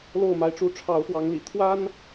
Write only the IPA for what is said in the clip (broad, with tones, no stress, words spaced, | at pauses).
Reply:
lo˥˨ʊ̯ma˦ɪ̯ʈ͡ʂu˦ ʈ͡ʂʰɑ˨˦ʊ̯fwɑ˨˦ŋlḭ˨˩ t̪ʰwa˦n